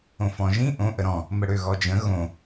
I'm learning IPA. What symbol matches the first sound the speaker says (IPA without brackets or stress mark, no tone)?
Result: õ